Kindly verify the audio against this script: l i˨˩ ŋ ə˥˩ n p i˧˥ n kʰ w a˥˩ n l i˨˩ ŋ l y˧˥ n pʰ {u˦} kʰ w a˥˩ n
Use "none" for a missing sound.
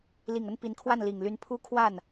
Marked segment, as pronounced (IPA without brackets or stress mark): u˥